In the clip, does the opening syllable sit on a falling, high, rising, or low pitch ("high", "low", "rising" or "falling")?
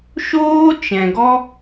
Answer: high